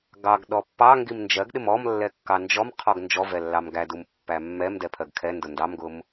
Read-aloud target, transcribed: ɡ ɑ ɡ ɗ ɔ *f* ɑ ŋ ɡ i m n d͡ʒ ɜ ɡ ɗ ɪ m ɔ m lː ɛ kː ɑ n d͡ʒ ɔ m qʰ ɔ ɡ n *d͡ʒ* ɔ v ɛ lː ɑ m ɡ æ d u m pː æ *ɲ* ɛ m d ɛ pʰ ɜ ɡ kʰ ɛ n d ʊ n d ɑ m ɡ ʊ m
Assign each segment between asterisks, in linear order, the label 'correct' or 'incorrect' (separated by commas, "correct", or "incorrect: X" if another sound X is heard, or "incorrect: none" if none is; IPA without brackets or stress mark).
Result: incorrect: pː, correct, incorrect: mː